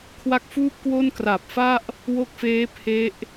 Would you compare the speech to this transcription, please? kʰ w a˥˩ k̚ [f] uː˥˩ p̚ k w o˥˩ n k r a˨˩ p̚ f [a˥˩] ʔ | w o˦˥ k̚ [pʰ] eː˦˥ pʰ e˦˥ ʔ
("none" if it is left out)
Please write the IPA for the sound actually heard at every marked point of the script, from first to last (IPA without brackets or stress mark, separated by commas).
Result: f, a˥˩, f